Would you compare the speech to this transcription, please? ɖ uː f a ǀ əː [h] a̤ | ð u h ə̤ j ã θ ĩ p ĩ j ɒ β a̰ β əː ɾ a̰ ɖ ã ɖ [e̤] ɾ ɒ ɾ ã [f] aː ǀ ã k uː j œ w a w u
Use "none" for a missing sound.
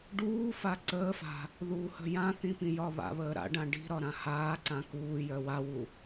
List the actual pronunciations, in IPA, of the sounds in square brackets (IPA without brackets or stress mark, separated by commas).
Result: f, i̤, h